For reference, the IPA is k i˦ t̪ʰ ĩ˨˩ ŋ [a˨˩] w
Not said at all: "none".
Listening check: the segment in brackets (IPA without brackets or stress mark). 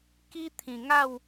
a˥˧